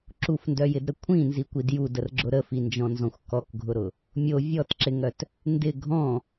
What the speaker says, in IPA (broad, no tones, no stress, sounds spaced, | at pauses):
ǁ u f n d œ j ɪ d ɾ ə kʷʰ ĩ n z i kʷ i d j u d ə r ɡ͡ǁ ʊ ɾ ə f i n d͡ʒ ɔ̃ n z ɔ̃ xʷ k ɔ k ɡʱ ʊ ɾ ʊ | mʲ o vʲ ɔ t ǁ ɪ ŋ œ t | n d ɪ ɡʱ ɔ̃